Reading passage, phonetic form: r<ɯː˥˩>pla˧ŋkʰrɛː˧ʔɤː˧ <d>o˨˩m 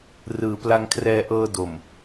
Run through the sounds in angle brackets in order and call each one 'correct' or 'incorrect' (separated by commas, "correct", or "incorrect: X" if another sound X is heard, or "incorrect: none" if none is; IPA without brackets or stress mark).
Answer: incorrect: ɯː˩˦, correct